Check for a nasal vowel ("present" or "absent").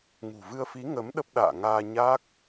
absent